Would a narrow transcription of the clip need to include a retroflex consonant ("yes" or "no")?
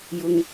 no